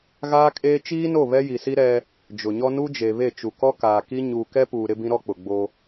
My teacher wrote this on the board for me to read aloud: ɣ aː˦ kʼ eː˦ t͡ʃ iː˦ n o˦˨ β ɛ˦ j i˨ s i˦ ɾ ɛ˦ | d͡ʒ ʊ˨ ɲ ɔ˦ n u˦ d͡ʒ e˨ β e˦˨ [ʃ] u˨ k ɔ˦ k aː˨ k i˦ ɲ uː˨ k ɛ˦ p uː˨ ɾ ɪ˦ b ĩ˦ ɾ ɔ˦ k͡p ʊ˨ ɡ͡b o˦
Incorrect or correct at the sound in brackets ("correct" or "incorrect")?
incorrect